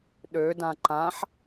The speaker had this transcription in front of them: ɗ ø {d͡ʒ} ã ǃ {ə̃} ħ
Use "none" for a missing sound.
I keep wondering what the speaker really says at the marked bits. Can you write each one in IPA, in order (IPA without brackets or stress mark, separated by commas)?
d, ã